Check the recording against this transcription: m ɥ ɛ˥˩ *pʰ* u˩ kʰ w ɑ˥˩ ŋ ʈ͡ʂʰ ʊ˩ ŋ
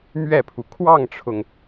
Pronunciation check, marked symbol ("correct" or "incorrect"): correct